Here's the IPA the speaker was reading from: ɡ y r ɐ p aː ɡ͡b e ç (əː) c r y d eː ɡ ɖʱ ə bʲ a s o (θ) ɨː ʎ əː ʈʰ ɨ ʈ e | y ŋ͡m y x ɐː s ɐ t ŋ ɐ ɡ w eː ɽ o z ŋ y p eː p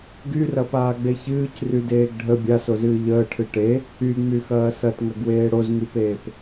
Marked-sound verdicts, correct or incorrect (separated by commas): incorrect, incorrect